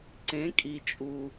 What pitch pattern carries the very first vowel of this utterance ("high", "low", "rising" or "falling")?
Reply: rising